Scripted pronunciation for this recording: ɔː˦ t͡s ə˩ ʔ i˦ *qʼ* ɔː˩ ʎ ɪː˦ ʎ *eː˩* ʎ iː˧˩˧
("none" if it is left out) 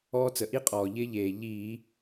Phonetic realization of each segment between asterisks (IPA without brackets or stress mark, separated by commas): qʼ, eː˩